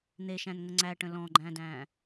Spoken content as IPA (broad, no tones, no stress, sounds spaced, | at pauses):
n̪ e ʃ æ̃ n ŋ ə ŋ͡ǀ æ ʈ ə̃ l ɔ̃ ɡ͡ǃ æ̃ d æ̃